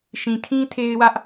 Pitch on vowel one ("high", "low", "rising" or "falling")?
low